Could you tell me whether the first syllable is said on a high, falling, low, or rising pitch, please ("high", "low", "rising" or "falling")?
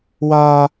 high